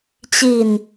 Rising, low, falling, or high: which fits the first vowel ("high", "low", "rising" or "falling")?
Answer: low